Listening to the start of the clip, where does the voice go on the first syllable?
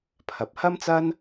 low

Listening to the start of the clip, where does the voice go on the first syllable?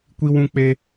high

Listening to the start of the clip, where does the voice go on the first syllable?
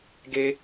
high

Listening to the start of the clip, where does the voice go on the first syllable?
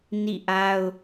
falling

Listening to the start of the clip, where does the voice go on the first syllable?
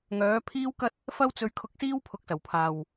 rising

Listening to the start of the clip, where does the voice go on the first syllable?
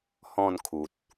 falling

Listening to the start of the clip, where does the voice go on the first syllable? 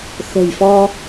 low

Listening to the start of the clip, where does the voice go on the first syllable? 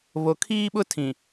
low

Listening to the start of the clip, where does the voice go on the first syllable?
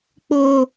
high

